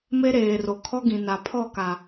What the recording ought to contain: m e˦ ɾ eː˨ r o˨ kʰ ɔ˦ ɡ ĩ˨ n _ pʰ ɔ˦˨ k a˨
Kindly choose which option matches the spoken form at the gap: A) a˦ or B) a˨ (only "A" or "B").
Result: B